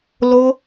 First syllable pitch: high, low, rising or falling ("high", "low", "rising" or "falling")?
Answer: high